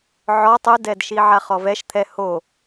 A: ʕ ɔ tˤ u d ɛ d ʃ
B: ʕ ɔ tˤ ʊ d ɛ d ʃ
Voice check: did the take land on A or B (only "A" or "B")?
B